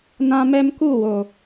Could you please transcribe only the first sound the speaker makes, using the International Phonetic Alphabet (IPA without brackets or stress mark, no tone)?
n